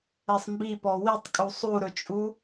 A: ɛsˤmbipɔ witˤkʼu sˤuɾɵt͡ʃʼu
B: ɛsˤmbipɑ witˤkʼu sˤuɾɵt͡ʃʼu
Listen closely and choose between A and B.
A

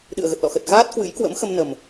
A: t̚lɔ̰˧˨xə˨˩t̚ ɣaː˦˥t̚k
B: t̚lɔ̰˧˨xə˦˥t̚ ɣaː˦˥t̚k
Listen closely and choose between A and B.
A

